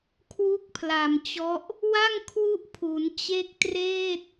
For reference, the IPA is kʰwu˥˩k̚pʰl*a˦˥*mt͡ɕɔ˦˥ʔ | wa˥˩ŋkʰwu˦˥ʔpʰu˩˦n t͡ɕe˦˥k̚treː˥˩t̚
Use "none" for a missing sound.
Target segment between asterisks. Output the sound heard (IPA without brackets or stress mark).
a˨˩